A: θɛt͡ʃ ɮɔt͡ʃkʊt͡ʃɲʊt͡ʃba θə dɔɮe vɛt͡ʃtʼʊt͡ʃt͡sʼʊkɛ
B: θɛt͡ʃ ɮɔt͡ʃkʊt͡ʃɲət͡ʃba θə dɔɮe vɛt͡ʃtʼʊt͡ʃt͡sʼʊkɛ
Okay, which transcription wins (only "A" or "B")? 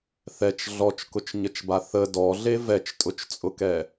B